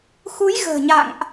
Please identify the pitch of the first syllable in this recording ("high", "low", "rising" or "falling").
rising